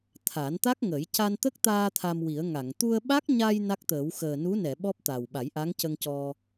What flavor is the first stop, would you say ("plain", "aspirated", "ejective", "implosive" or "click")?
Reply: aspirated